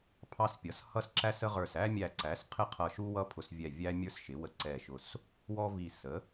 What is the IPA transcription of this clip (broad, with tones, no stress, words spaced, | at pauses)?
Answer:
pʰɑ˦s pʲʌ˩˥s hʌ˦sǁæ˦sə˦ʁə˞˧˩s æ˦mʲæ˧˩ǀæ˩˥s qʰɪ˦qʰʌ˧˩ʃu˦ wʌ˦pʰʊ˧˩svʲɛ˧˩ vʲæ˦ mʲə˞˦sʃɪ˩˥wə˧˩ǀɛ˧˩ ʃʊ˧˩s | wɔ˦vi˧˩ sə˩˥